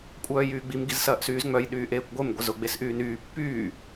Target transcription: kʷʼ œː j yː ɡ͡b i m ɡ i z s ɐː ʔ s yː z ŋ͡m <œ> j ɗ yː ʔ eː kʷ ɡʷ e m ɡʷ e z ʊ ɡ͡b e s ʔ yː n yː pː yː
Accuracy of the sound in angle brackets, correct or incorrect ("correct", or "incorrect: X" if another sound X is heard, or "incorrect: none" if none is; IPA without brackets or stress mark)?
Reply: correct